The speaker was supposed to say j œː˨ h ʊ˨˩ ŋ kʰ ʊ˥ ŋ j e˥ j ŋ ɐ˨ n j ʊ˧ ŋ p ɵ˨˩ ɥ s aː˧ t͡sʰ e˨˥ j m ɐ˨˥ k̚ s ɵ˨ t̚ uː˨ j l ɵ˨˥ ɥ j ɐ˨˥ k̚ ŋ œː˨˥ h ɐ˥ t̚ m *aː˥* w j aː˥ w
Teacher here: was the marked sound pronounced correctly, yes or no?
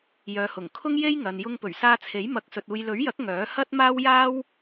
yes